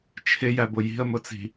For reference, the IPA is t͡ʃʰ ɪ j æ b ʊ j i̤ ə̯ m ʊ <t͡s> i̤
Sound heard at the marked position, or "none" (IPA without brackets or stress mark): t͡s